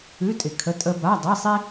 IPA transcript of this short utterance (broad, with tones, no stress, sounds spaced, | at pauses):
ʉ˧˥˧ tʼ ɪ˨ kʰ ə˧˥˧ tʼ ə˥ b a˧˥˧ dˤ i˧˥˧ sˤ i˥